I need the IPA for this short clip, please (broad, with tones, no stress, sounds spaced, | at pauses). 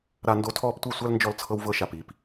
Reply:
ɾ a˧ n d o˧ tʰ ɔː˦ p tʷ i˦˨ sʷ a˦ l n d͡ʒ ɔ˧ l t͡sʰ ɤ˧ w v ɤ˧ ʃ a˨ p i˨ p